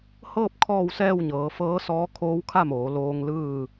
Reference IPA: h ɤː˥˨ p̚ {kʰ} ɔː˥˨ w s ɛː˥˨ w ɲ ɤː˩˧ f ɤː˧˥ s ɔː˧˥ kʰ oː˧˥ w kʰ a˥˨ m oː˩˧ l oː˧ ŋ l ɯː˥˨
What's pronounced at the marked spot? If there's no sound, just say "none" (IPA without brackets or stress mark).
kʰ